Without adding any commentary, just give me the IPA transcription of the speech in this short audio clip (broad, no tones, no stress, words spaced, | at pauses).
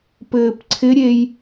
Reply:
pɘːpǀʰɪɾʲej